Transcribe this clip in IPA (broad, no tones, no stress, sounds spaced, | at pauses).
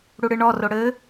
ɽ u ɽ ɨ ɳ ɔ r o ɽ ɘ